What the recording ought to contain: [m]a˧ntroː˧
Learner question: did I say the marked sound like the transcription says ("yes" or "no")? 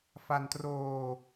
no